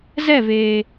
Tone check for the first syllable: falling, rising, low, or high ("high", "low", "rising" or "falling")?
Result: falling